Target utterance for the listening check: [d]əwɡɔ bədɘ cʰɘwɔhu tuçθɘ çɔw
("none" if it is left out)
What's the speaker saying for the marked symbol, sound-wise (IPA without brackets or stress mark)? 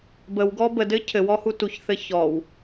b